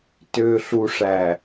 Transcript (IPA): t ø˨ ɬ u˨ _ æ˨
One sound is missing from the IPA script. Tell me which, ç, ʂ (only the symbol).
ʂ